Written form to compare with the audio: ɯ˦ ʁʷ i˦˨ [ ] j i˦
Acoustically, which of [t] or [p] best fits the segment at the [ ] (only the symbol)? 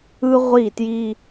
t